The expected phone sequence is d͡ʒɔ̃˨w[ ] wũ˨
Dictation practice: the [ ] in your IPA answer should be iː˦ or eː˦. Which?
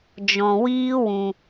iː˦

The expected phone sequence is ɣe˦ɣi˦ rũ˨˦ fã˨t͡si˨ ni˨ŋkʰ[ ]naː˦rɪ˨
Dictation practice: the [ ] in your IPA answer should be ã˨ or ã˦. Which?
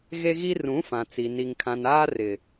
ã˨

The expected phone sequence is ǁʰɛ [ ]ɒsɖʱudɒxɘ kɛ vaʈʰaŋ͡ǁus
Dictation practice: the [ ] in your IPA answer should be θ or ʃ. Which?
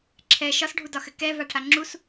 ʃ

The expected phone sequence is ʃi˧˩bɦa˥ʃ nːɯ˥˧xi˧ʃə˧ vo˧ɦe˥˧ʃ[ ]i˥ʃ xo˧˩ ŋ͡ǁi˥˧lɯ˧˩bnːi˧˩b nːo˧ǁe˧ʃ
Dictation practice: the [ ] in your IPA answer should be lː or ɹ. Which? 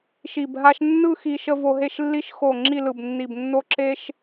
lː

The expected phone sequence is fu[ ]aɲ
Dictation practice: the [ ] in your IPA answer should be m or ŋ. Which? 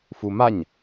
m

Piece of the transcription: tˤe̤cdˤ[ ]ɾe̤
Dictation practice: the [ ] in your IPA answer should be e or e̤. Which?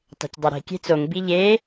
e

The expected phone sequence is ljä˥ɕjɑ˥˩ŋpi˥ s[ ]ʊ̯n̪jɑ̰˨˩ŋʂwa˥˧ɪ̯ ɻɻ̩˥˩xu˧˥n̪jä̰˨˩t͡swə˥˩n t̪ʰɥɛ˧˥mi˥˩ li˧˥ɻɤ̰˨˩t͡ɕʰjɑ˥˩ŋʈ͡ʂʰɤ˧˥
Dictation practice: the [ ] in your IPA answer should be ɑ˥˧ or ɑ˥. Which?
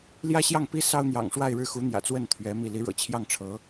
ɑ˥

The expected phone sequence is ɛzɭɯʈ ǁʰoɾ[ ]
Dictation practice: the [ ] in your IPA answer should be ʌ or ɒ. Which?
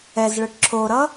ʌ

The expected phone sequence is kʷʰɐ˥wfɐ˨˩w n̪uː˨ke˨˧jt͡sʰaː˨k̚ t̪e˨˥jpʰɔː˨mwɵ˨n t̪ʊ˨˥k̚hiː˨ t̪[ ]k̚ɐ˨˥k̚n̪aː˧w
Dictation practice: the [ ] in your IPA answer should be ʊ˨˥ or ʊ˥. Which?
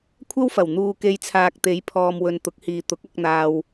ʊ˨˥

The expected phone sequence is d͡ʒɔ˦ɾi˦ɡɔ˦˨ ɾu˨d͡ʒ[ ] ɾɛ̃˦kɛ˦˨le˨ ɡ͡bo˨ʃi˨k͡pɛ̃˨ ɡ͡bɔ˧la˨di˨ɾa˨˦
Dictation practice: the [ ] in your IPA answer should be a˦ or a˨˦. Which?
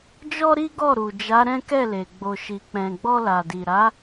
a˨˦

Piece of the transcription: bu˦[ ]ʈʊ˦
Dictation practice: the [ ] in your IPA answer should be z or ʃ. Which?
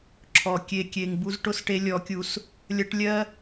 z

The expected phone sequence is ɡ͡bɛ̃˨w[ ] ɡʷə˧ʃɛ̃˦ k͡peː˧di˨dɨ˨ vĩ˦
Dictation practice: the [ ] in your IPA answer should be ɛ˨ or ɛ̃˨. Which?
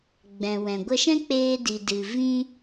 ɛ̃˨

